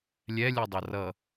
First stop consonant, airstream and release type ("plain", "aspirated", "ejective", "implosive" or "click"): plain